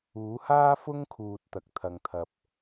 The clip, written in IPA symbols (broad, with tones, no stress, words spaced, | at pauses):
uː˨˥haː˥fʊ˥ŋkʰuː˨t̚ t̪ɐ˧k̚t̪ʰɐ˧ŋt̪ʰɐ˧p̚